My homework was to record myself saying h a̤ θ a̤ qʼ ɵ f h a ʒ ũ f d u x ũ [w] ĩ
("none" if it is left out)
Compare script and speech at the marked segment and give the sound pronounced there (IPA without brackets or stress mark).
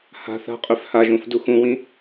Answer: w